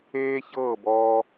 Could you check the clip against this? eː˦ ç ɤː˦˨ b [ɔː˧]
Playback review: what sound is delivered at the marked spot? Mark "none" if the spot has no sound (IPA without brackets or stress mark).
ɔː˧